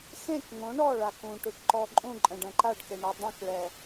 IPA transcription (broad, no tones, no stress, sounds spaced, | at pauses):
x ẽ k ŋ õ ɳ ɔ ɭ a k ũ ʈ u ʈ ǃ ɔ ǃʼ ũ ǃʼ ɛ̃ ɖ ɛ̃ ǃ a ɖ k e ɳ ɛ dˤ ẽ k ɭ ɛ